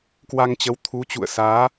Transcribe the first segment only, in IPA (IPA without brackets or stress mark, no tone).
k